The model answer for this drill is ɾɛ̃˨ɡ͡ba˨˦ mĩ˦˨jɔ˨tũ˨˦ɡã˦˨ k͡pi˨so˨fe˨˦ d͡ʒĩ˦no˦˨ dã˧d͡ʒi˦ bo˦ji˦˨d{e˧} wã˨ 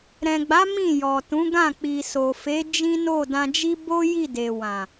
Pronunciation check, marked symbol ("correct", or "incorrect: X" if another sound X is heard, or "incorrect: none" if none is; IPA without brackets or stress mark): incorrect: e˨